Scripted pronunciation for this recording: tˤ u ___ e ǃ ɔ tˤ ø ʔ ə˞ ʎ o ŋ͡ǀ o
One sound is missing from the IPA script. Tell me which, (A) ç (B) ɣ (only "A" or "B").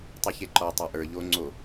A